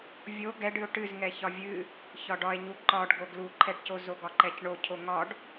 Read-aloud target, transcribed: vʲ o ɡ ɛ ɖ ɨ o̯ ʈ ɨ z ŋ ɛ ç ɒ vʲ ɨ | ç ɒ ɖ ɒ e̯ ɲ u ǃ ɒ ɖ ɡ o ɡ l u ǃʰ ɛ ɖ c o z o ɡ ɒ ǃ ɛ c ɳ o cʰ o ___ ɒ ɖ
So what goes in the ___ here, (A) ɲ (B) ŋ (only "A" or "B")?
B